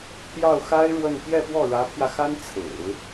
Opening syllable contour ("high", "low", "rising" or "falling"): falling